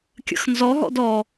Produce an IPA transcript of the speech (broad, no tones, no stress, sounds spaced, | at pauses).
kʲ ə̰ x n z ɔ ɦ ɔ̰ d ɔ